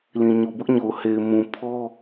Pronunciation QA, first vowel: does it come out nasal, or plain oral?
nasal